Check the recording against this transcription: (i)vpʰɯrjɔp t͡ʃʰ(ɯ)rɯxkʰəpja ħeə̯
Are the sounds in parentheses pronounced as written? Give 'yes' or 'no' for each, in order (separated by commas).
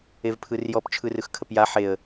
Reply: no, yes